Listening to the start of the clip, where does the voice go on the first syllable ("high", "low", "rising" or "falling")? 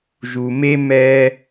low